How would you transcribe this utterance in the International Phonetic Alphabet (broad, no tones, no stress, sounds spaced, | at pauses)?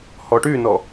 h ɔ ʈ y n ɔ